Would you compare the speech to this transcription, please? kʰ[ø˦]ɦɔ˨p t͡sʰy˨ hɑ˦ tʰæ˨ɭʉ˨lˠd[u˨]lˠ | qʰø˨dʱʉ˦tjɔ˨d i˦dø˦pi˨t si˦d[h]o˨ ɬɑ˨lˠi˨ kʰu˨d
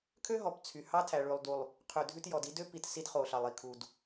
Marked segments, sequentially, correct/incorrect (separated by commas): correct, correct, incorrect